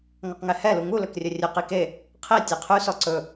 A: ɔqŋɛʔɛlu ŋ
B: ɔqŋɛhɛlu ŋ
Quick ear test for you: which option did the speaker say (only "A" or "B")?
B